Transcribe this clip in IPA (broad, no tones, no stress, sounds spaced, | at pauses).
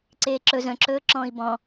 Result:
ǀ eː ǁ ɵ z œ̃ ǁ ɵː ǁ ɔ̃ː i̯ b ɔ̃